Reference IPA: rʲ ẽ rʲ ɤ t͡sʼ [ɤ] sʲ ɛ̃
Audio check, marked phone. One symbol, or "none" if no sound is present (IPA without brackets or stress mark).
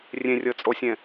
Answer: o